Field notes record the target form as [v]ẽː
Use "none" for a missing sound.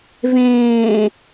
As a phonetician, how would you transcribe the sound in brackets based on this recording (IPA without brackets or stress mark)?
v